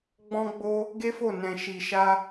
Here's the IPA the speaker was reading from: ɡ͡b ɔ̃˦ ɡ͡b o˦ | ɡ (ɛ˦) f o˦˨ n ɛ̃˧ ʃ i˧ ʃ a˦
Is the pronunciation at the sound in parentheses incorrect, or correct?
incorrect: e˦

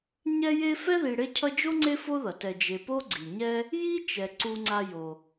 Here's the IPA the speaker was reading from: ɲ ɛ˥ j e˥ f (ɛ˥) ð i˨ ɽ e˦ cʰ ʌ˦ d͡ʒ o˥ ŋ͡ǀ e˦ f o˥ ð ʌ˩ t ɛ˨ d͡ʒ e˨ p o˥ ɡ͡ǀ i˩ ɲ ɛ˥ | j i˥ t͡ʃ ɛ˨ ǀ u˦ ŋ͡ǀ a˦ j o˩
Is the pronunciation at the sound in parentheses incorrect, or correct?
correct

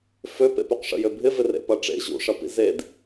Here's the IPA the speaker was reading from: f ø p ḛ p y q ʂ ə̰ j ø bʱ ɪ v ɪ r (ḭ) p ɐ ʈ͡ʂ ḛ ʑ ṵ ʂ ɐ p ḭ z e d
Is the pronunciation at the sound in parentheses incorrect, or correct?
incorrect: ḛ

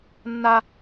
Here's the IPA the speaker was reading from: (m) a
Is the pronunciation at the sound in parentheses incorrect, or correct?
incorrect: nː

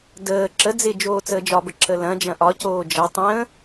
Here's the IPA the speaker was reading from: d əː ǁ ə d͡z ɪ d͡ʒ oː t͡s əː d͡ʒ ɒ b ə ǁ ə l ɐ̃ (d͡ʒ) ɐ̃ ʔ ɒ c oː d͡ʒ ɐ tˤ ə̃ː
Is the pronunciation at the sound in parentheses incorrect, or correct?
correct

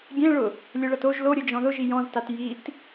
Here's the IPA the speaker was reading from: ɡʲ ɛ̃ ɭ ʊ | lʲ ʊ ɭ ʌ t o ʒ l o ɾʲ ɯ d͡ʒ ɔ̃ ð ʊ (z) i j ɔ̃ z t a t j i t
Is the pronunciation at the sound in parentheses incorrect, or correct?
incorrect: ʒ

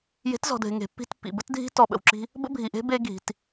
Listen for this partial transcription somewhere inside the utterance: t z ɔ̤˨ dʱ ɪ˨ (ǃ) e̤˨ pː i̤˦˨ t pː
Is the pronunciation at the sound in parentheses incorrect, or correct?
incorrect: ŋ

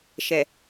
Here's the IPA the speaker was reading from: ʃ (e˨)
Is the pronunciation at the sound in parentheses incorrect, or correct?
incorrect: ɛ˨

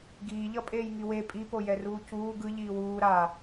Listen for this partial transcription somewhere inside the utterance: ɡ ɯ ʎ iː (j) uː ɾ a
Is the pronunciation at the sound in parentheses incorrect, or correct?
incorrect: w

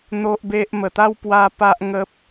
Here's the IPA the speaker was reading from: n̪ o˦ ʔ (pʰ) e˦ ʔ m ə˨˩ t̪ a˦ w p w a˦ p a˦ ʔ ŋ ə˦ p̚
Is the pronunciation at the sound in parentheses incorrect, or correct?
incorrect: b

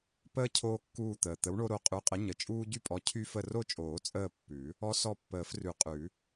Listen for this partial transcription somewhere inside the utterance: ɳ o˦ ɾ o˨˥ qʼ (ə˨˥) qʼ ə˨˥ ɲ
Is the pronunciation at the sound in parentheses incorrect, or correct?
incorrect: ʉ˨˥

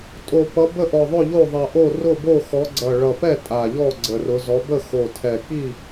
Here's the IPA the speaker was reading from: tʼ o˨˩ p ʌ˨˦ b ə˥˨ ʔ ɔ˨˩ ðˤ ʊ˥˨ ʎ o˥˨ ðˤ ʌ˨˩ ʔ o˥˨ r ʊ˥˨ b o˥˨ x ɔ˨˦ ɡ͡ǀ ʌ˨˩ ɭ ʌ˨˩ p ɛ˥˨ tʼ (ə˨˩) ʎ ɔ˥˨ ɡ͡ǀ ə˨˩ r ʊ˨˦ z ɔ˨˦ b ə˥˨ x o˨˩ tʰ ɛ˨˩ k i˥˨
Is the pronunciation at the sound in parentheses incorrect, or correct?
incorrect: a˨˩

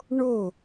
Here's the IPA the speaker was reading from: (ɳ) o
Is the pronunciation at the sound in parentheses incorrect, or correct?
correct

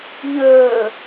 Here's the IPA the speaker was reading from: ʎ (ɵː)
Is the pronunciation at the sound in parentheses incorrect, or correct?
correct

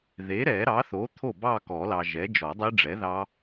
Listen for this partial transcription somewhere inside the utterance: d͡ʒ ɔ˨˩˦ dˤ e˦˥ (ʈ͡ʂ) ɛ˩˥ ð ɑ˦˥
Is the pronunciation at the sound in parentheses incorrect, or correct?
incorrect: ɖ͡ʐ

